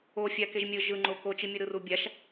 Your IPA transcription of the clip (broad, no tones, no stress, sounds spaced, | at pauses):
o fʲ a k e ʒ mʲ ɯ ʒ ɯ ŋ͡ǃ o k o t͡ʃ i mʲ u ɾ ɯ r u bʲ a ʃ